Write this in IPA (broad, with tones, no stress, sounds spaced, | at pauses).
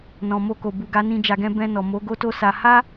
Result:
n ɔ̃˨ m o˧ k o˨ b u˨ ɡ a˨˦ n ĩ˧ d͡ʒ a˧ ɡ ɛ̃˦ b ɛ̃˧ n ɔ˨ m o˨˦ ɡ o˦ t o˦ s a˧ h a˦